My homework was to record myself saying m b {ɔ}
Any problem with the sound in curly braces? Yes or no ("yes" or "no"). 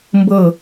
yes